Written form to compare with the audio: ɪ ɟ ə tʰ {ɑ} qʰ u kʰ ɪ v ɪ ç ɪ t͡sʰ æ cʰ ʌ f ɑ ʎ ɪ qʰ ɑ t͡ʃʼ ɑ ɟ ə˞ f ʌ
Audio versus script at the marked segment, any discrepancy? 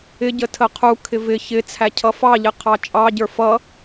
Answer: yes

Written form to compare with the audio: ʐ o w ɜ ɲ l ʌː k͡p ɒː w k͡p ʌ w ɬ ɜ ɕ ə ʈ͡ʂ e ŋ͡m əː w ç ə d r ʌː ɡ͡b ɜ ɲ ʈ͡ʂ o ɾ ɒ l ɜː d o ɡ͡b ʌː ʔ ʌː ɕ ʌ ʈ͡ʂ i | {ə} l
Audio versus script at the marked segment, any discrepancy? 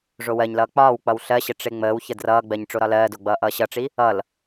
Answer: yes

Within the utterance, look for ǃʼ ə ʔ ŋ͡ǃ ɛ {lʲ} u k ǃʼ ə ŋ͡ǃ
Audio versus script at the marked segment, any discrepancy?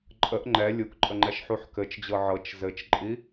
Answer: no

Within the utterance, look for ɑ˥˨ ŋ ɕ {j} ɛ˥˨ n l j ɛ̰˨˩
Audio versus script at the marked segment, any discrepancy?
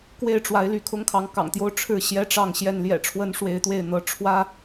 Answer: no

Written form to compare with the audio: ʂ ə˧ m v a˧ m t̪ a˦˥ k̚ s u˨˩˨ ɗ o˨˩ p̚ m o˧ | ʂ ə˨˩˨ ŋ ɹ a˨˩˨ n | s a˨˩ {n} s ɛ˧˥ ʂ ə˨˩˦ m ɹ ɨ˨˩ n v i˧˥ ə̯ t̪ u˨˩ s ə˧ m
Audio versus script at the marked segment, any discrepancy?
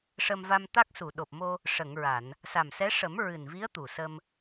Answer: yes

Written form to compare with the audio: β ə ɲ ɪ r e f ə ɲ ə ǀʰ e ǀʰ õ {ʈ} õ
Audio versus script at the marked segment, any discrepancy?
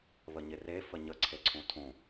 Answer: yes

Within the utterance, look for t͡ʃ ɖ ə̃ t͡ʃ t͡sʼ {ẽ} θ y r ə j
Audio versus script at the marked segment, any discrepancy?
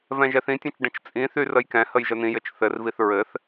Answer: yes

